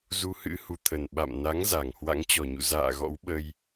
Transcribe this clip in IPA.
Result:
zu˧hɨ̰˧˥ hu˨˦t̪ʰə˨˩n ɓa̰˧˨m na˨˦ŋ za˧˩ŋ hwa̰˧˥ŋt͡ɕɔ˧˩ɲṵ˧˨ za̰ː˧˨ɣɔ̰˧˥w ɓə˧j

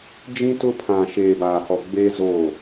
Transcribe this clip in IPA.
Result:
d͡ʒĩ˦tʊ˦pʰã˨ ʃeː˨baː˨hɔ˨ ɡ͡beː˦ zoː˦˨

